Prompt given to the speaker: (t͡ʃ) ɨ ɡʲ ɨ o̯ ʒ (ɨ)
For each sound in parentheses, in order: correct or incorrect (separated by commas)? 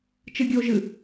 correct, correct